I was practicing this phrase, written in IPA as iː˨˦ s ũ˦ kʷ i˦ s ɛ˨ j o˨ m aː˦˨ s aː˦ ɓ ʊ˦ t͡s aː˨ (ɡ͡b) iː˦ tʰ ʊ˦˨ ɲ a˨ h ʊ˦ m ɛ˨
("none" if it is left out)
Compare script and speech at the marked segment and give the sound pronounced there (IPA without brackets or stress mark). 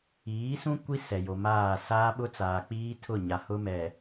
k͡p